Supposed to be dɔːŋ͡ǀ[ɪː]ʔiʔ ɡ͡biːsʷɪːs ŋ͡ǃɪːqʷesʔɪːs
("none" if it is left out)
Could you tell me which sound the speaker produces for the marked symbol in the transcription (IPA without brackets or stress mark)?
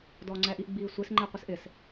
ɛː